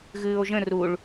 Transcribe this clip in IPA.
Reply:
ɣ ɨː o̯ ʒ ə̃ r u ɭ

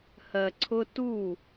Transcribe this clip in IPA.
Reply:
h ɜ˨ ǀʰ ʊ˦ t u˦˨

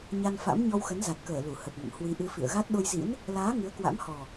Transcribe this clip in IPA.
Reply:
ɲ a˧ n f a̰˧˥ m ɲ ɔ˧ w x ə˨˦ n z a˨˩ t̚ k əː˧˩ l u˧˩ h ə˨˩ p̚ ŋ ə̰˧˨ m h w i˨˦ ʔ ɨ˧ f ḭ˧˨ ə̯ ɣ a˦˥ t̚ ɗ o˧ j z ḭ˧˥ n | l aː˨˦ ŋ ɨ˨˦ ə̯ k w a̰˧˥ m h ɔ˨˩

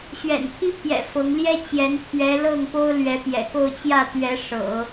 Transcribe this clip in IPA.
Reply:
ɕ ɥ ɛ̰˨˩ n pʰ i˥ pʰ j ɛ̰˨˩ f ɤ˧˥ ŋ l j ɛ˥ t͡ɕ j ɛ˧˥ n t̪ʰ ɥ ɛ˧˥ l ɤ˥˩ ŋ p o˥ ʊ̯ l ɥ ɛ˧˥ p j ɛ̰˨˩ k o˥˧ ʊ̯ t͡ɕ j ä˥˩ t̪ ɥ ɛ˧˥ ʂ ɤ̰˨˩˦

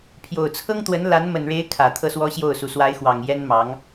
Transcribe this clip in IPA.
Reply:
pʰ j o˨˩ ʊ̯ t͡sʰ ɤ˥ ŋ t̪ w ə˧˥ n l a˧˥ n m ə˨˩ n ɻ e˧˥ ɪ̯ kʰ ä˨˩ t̪ʰ ɤ˥˩ s w ɔ˥ ɕ j o˥˩ ʊ̯ s u˧˥ s w a˧˥ ɪ̯ x w ɑ˨˩ ŋ j ɛ˥ n m ɑ˧˥ ŋ

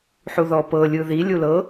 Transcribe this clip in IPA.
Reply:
ħ u ð ɔ p ɤ lʲ ɯ ð i lʲ u l ɤ

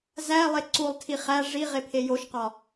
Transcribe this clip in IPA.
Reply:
z æ lˠ e ǀ u lˠ tʰ i χ æ ʐ i ʁ e pʰ e j o ʃ q ɒ

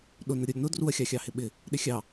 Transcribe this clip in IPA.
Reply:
ɗ ʊ n ə ɾʲ ʊ ɾʲ ʊ n ʊ d r u ɐ̯ xʲ ɑ xʲ ɑ h ɪ ɓ ɪ | ɗ ɪ xʲ ɑ

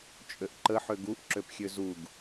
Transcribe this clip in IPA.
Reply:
t͡ʃʼ ø ʔ ǃ ə ħ ø ɡ u ʔ ǁ ø p xʲ ø z u ɡ

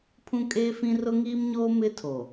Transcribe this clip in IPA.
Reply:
pʰ ũ˦ kʼ eː˦ f ĩ˦ r ʊ˦ ŋ iː˦ m ɲ oː˦ m ɪ˦ tʰ o˨

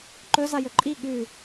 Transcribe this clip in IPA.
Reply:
ǃ ɵ z a j ɵ ǃʼ i ɠ ʉ

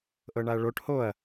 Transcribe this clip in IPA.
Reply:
ʔ ɤ ɳ a ɐ̯ ɭ o ʈ h o ɐ̯

